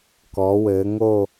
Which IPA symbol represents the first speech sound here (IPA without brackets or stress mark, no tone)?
k